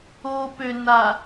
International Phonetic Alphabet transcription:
o p ø n a

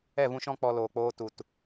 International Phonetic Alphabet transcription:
ɛ˦˨ v ũ˦ ʃ ɔ̃˦ k͡p ɔ˧ l oː˨ k͡p oː˦ t u˨ t

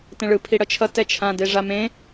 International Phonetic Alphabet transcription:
t ẽ ɭ ɯ pʰ i ɽ ʌ t͡ʃʰ ʌ t ɛ t͡ʃʰ ã d e ʐ a m ẽ

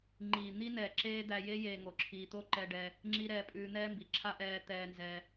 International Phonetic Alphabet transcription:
ŋ͡ǃ iː˨ n̪ i˦ n ɛː˨ ǁ eː˦ d̪ æ˧ j e˦ j eː˧ ŋ o˨ ǁʰ iː˧ t̪ o˦ ǃ ɛ˧ ɖ ɛ˧ | ŋ͡ǁ i˧ ɾ ɛː˧ pʼ ʉː˧ n̪ ɛː˦ m b i˨ ǁʰ a˦ ʔ ɛː˧ t̪ ɛː˧ n z ɛ˧

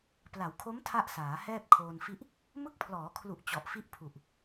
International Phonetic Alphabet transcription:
p l a˩˦ w kʰ o˦˥ m tʰ a˥˩ ʔ s aː˩˦ h ɛː˥˩ p̚ kʰ oː˧ n f i˥˩ ʔ | m ɯ˦˥ k̚ pʰ l ɔː˩˦ kʰ l u˨˩ ʔ t͡ɕ ɔ˨˩ ʔ f i˦˥ ʔ pʰ u˨˩ ʔ

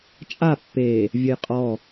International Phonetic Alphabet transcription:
t͡ʃʼ a pː e | vʲ ə j qʼ ɔ

